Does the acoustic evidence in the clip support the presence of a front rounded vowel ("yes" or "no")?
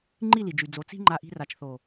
yes